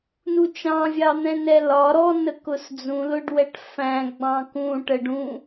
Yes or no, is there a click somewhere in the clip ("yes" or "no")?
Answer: no